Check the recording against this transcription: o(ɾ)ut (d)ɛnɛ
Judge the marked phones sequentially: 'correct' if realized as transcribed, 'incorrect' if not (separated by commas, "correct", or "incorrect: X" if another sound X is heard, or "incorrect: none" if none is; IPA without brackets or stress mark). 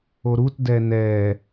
correct, correct